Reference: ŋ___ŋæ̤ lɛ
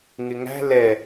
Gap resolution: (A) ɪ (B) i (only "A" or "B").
A